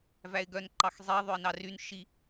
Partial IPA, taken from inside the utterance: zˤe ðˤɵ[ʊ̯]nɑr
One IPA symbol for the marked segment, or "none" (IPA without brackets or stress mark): ɪ̯